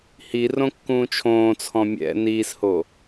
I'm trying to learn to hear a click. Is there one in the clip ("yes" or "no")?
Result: no